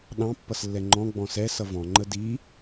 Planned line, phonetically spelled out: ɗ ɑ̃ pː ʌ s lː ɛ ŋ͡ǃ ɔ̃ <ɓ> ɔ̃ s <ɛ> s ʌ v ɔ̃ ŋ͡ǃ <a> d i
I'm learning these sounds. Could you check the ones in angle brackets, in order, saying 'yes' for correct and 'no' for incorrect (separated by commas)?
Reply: no, yes, no